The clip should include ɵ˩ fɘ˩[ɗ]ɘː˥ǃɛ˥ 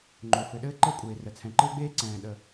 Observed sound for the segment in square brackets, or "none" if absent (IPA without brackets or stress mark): ɗ